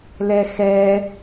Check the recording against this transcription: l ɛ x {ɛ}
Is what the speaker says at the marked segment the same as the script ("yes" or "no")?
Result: yes